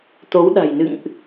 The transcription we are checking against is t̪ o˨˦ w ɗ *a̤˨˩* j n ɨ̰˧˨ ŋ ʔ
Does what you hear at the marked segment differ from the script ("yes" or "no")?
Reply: no